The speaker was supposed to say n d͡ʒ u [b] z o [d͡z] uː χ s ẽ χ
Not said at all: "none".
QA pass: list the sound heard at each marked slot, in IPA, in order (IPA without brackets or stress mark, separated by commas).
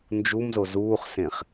m, z